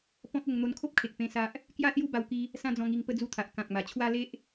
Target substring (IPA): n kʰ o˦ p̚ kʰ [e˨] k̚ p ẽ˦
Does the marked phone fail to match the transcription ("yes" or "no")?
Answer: no